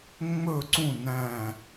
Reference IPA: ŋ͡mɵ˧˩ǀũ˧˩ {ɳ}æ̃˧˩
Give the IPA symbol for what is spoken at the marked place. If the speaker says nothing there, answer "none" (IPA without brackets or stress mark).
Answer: n